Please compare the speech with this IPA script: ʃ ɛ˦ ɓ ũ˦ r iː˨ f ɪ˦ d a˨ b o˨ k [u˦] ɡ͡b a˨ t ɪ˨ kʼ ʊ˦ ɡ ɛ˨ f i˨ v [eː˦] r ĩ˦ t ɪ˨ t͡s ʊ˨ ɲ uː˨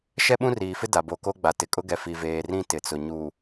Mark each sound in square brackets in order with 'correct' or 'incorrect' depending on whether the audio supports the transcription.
incorrect: o˦, incorrect: eː˨

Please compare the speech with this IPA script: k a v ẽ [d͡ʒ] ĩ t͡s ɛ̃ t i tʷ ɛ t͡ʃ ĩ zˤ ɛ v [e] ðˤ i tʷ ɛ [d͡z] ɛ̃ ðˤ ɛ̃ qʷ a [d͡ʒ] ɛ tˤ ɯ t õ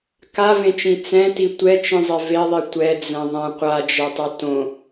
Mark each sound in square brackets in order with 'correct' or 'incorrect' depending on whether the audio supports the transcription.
incorrect: t͡ʃ, correct, correct, correct

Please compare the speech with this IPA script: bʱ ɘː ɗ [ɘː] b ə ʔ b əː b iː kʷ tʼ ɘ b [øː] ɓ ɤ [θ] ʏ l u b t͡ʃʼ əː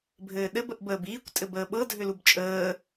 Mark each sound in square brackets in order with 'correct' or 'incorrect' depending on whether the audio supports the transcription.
incorrect: ɘ, incorrect: əː, incorrect: dʱ

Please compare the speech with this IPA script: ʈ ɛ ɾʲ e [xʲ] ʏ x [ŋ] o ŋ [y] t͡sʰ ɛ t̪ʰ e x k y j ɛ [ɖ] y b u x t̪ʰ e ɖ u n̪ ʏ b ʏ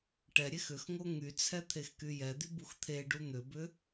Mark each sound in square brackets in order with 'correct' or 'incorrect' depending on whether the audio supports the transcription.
incorrect: x, correct, correct, incorrect: d̪

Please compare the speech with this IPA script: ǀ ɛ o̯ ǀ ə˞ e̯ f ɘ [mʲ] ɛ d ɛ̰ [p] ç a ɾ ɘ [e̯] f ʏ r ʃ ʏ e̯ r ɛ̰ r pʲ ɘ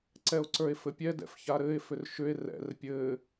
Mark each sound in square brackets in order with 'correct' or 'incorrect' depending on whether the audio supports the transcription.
incorrect: pʲ, incorrect: f, correct

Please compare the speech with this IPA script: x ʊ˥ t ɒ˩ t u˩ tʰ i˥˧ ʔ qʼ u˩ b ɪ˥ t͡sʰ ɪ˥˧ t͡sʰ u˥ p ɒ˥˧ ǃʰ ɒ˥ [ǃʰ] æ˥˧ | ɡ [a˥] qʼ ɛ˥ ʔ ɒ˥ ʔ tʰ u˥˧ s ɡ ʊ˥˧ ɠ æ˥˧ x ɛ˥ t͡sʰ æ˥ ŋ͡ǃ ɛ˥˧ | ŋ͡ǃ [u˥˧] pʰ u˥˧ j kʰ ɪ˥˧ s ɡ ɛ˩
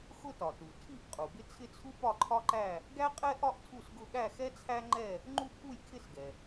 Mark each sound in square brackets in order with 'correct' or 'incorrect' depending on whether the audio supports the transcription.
incorrect: ǃ, incorrect: æ˥, correct

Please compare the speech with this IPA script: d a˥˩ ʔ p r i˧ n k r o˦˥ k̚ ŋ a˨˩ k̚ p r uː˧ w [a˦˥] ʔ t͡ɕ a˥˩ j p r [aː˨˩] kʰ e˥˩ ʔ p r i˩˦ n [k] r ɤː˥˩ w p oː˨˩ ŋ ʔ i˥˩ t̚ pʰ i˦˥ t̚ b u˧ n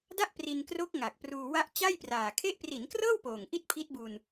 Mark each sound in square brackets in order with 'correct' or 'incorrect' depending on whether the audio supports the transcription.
correct, correct, correct

